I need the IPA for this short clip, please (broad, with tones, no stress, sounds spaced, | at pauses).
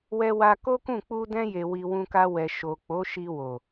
w ɛ˧ w a˧ k o˦ k ũ˦˨ k͡p u˧ d ɛ̃˧ j e˨ w i˨ w ũ˧ k a˧ w ɛ˨ ʃ o˨ k͡p o˨˦ ʃ i˧ w o˨